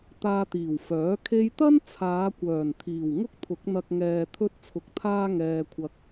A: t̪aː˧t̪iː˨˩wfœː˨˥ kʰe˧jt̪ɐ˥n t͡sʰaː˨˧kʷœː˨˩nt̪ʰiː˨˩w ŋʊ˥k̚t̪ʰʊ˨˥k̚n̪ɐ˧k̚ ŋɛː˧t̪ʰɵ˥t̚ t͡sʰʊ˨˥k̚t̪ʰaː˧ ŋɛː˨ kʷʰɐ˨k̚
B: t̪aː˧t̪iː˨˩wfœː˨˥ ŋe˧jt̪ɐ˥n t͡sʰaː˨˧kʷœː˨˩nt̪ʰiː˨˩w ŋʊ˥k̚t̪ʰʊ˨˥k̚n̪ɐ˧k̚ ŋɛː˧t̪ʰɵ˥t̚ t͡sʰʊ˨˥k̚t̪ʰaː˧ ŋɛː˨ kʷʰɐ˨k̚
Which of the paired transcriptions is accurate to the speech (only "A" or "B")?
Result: A